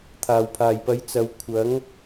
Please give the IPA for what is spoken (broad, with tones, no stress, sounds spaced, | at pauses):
t̪ʰ aː˨˩ w pʰ aː˨˩ j p ɐ˨˥ j t͡s ɐ˨˧ w kʷʰ ɐ˨˥ ŋ